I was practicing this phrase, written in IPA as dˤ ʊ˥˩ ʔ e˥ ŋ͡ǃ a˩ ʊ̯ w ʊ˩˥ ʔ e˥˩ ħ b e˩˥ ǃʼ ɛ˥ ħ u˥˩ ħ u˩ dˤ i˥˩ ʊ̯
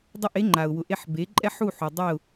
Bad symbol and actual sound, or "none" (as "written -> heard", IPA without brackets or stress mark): none